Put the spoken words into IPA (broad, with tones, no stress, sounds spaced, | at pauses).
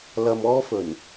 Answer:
l ɐ˧ m ɔː˥ f ɵ˨˩ n